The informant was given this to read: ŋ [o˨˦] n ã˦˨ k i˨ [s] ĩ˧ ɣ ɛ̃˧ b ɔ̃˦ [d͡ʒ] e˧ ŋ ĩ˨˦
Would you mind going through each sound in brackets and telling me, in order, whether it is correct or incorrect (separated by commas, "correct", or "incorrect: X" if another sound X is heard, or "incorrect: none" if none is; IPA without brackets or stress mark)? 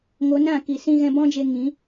correct, correct, correct